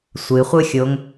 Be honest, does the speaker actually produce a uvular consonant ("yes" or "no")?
yes